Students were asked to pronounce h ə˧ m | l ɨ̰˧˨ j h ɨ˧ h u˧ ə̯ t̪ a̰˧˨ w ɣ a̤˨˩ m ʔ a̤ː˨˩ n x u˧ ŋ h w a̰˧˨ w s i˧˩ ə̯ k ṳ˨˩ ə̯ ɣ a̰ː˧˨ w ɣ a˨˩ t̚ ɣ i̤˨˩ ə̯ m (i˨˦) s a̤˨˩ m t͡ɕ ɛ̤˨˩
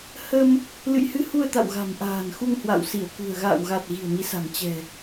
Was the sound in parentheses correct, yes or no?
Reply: yes